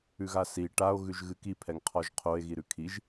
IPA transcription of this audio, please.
ʉ ɣ a s i ʈ a o̯ ɣ ʉ ʒ ɣ ɨ k i pʰ ɛ ŋ qʰ ɔ ʒ qʰ o e̯ ɣ i ɾ ʉ kʰ i ʒ

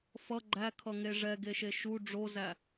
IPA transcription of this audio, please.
f ʌ ɡ͡ǃ æ kʰ ʌ ŋ e ʐ ɛ ɡ e ʃ e ʃ u ɖ͡ʐ o z æ

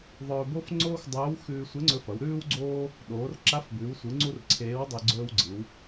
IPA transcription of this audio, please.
ðˤ ɵː˧ b o˥ f ŋ͡ǀ oː˥ x dˤ ɵː˧˥ w x ʉː˧ sʷ e˧˥ ŋ͡ǀ ɵ˧ f ɐ˩˧ w ɾ ʉː˥ w ɡ͡ǀ oː˥ | ɗ oː˩˧ r ǁ a˧˥ f b ʉː˩˧ w sʷ ɨ˩˧ ŋ͡ǀ u˥ r ǀʰ eː˧˥ w dˤ i˧ ɡ͡ǀ ɵː˧ w ɡ͡ǀ ɨ˩˧ w

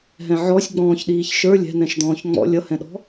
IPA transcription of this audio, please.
ɦ ɛ̃ ʕ ɔ sʲ ɡ͡b ɔ̃ː ç ɗ iː ç ʃ ə˞ lʲ ɛ̤ n ɛ̃ ʃ d̪ ɔ̃ː ç ŋ͡m ɔ̰ lʲ ʌ h ɛ̃ ɗ ɔ̤

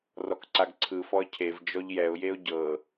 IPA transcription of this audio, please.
r ɔ k ǀ a ɡ ǀʰ ɯ f ɔ ə̯ cʰ e v d͡ʒ ɔ ʎ j ɛ ʊ̯ j e ʊ̯ ɟ ɤ

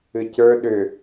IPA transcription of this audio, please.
ɨ c ə˞ ɗ ʏ

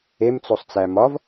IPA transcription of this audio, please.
e m t͡s o sˤ t͡s æ m ɒ v

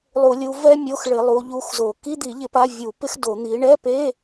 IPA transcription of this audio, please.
lˠ u˧˩˧ lʲ u˨˦ v ɛ˥ mʲ o˧˥˧ x ɭ ɪ˧˩˧ lˠ u˨˦ ʎ u˧˥˧ x z o˧˩˧ k i˧˥˧ d̪ i˧˩˧ ʎ ɪ˧˩˧ p a˧˥˧ vʲ u˧˩˧ p ɪ˥ x d o˧˩˧ n̪ i˨˦ ɳ ɛ˧˥˧ p e˧˥˧

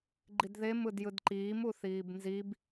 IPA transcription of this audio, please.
ɡ͡ǃ i d ð e m ɯ d j ɯ d ǃ iː m u θ iː b n z i b

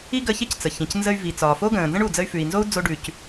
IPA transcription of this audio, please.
i˥ ɡ ə˧ ç e˥ c t͡s ə˩ ç ĩ˩ c n z ə˧ y̯ v i˩ t͡s ɒː˩ f o˥ ɡ ə̃ː˩ n z ə̃˥ ɳ u˩ d͡z ə˧ y̯ f ʉ˩ i̯ n z o˥ u̯ d͡z o˧ ɖ ʉ˩ c

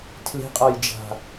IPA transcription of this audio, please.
tʰ l e̤ qʼ a j d͡ʒ a̤

